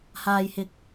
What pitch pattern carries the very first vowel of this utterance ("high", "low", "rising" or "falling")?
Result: low